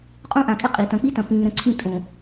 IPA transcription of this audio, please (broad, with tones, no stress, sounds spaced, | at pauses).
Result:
qʼ ũ˦ ʔ ã˨ kʼ ɪ˦ qʼ i˨ t ɐ̃˨ k͡p i˦ t ɐ̃˨ p ĩː˨ ɾ ə̃˨ ǀʰ ĩ˦ tʼ õ˨